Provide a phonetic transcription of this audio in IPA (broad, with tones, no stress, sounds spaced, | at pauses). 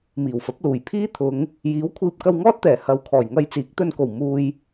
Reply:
m iː˨˩ w f ɐ˨˥ p̚ l uː˨˩ j pʰ iː˥ t̪ʰ ʊ˨˧ ŋ | j iː˨˥ w kʷʰ iː˧ p̚ k ɐ˧ w ŋ ɔː˥ t̚ t̪ ɛː˨˩ h ɐ˨˧ w kʰ ɔː˨˩ j ŋ ɐ˧ j t͡s iː˨˥ k̚ t̪ ɵ˧ n k o˨˩ w m uː˨ j